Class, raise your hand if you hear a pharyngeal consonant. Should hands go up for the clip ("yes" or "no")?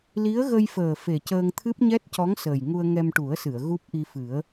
no